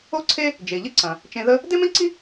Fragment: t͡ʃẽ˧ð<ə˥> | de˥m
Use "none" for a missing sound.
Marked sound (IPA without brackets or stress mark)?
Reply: ə˥